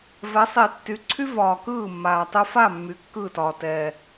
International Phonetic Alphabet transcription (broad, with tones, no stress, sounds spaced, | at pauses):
v ɛ˨˦ sˤ i˨ tː y˨ ǀʰ y˦ v ɒː˨ k ɯː˦˨ mː aː˨ tˤ ɯ˧ f a˦˨ mː y˨˦ kː ɯː˦˨ t ɒː˨ t ɛː˨